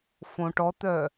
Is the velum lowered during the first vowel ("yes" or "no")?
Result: yes